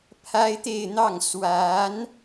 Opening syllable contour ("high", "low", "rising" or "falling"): high